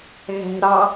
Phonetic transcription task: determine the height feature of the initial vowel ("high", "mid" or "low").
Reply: low